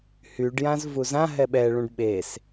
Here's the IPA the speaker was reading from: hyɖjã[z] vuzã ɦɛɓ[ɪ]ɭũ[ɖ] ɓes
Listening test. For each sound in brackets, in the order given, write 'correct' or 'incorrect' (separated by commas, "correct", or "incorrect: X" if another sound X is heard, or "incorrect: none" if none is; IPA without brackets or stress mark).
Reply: correct, incorrect: ɛ, correct